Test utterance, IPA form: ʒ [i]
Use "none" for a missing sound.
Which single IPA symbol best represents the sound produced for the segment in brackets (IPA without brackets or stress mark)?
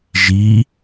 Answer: i